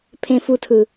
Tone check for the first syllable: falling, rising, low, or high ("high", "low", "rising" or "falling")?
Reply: low